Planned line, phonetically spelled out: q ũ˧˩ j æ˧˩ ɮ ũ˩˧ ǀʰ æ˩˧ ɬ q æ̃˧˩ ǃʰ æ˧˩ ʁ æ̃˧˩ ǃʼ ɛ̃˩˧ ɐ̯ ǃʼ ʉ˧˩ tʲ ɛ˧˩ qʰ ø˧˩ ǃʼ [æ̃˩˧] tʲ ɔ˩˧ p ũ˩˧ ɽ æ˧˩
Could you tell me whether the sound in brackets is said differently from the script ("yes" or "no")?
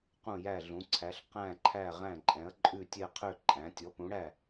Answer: no